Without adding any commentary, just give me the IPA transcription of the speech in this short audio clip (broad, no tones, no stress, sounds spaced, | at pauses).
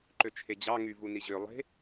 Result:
ǃ ø t͡ʃʰ e d͡ʑ ɑ ŋ y v u n i ʑ ø lˠ e̤